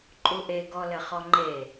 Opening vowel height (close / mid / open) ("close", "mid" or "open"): close